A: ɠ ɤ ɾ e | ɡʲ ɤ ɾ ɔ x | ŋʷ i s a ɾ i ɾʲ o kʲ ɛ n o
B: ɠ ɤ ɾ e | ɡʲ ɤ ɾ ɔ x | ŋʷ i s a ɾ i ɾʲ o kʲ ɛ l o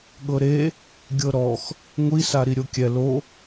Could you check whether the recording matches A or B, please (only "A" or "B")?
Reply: B